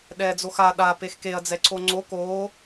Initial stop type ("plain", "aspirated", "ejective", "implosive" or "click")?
implosive